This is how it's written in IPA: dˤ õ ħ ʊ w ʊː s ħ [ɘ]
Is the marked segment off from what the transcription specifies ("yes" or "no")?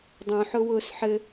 no